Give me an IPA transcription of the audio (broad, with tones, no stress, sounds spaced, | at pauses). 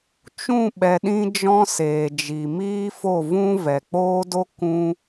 t͡ʃ ũ˦˨ ɓ ɛ˨ ɗ ĩ˧ d͡ʒ ɔ̃˦ s eː˨ d͡ʒ i˨ m iː˦ f o˦˨ v ũ˦ v ɛ˨ k͡p oː˦ d o˦ k ũ˦